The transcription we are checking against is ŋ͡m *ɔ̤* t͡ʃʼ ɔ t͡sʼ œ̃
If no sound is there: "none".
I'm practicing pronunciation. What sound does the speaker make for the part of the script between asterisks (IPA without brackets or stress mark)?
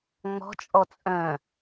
ɔ̤